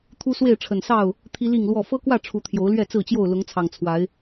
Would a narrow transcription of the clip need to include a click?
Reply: no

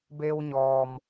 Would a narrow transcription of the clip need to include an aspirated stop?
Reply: no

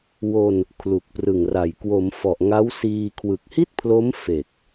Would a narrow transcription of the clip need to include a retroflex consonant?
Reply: no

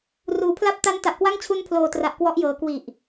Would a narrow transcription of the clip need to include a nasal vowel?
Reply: no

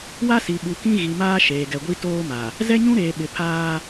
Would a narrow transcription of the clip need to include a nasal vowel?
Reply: yes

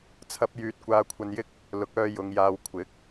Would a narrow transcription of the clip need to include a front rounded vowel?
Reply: yes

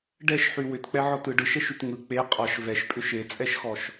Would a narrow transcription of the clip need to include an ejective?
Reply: yes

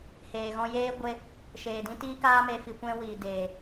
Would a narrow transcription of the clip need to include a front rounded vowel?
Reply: no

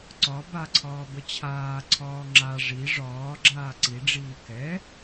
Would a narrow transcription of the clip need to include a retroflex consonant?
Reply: yes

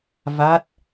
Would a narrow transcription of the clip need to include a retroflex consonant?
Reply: no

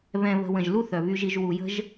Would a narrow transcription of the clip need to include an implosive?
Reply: no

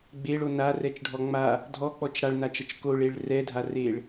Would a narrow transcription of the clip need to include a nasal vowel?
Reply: no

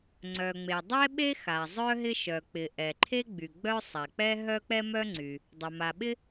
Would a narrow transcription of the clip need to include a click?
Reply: yes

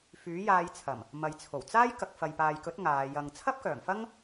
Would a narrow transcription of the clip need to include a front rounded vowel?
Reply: yes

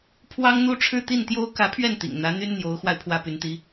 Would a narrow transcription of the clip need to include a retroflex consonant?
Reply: yes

